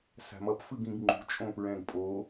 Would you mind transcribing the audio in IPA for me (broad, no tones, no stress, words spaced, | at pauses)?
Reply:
sa̤mʌp fɯɡĩɡŋ͡ǃṳ t͡ʃʼõpɹɛ̃ɡpʼo